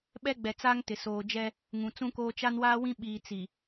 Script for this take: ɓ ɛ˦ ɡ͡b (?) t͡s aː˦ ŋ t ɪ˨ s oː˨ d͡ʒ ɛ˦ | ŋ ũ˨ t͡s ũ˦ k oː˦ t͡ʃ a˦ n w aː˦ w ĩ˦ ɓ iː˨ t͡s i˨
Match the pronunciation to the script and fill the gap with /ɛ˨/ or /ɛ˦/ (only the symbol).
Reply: ɛ˨